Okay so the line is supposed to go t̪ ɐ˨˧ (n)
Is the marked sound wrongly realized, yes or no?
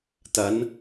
no